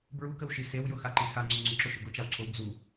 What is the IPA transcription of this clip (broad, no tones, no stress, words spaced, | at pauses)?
bɹukəwʃi sewjʊxaǃi xaŋ͡ǀʊ ŋ͡ǀʊǁʊʃʊ ɡʊt͡ʃawǀʰow d͡zu